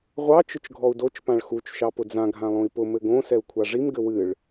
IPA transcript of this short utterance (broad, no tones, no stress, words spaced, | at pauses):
ʁʷɑ t͡ʃɨt͡ʃɡʱɔu̯dot͡ʃ pãɭxut͡ʃ ʃɑpʊd͡zã ɡʱãlˠõi̯pʊ mɘɡõ sɛu̯kʷʰaʐim ɡɘwɨɭ